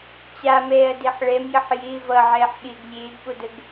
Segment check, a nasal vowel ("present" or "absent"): absent